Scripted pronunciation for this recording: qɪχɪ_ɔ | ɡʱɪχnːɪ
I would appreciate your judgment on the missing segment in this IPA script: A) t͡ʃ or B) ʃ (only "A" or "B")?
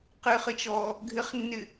A